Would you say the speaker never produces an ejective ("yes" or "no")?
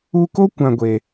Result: yes